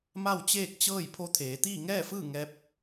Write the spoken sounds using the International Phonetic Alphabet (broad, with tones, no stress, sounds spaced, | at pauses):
m a˥˨ w t͡ɕ eː˥˨ k̚ t͡ɕ ɤː˥˨ j pʰ o˧˥ t̪ʰ eː˩˧ t̪ iː˥˨ ŋ ɛː˥˨ f ɯː˥˨ ŋ ɛː˧˥ p̚